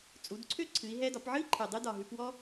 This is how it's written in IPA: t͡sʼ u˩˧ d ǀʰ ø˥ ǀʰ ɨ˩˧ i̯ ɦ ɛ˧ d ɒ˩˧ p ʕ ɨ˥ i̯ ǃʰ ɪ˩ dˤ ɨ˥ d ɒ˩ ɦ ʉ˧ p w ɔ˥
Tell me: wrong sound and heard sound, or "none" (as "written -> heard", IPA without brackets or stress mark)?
ɪ˩ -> ɨ˩